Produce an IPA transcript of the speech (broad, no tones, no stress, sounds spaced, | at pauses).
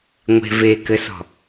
ŋʷ e̤ v e k ɘ s ɔ̤